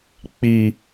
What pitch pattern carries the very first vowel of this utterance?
low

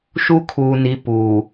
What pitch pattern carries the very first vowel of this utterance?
high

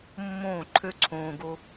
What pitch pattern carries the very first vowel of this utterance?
falling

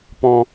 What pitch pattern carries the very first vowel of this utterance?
high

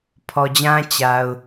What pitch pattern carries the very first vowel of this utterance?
low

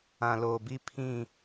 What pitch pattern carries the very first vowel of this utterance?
low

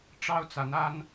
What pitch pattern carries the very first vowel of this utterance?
high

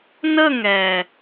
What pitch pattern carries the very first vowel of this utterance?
falling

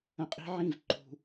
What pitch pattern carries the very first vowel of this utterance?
low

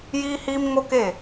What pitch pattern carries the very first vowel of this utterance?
high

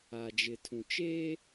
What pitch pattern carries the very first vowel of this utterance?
low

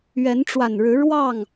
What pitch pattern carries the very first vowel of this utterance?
rising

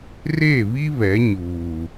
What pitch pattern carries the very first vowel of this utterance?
falling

